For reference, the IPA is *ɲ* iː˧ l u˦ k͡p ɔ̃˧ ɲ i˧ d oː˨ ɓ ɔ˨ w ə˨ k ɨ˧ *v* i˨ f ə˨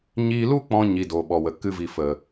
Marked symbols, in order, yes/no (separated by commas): yes, yes